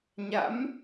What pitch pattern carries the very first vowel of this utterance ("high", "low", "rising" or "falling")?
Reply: rising